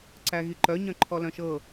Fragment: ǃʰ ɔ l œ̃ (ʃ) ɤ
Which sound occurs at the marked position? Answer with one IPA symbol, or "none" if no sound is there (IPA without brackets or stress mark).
ʃ